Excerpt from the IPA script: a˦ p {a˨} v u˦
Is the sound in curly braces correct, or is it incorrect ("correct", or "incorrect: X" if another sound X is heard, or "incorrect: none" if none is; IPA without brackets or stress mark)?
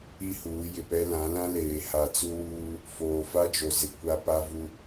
incorrect: a˦